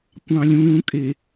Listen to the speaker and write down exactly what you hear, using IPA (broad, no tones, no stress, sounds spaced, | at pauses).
kʷ ɑ̃ lʲ ũː kʼ e